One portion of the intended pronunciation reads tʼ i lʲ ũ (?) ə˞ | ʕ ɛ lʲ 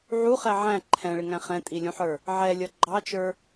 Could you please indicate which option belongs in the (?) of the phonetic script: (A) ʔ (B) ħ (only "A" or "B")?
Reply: B